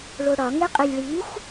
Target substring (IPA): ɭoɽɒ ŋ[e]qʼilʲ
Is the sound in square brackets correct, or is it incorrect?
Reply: correct